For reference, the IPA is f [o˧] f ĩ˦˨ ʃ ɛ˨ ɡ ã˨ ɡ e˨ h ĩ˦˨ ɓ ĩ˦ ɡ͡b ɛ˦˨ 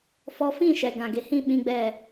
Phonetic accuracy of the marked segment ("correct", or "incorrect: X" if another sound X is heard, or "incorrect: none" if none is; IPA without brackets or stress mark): incorrect: ɔ˧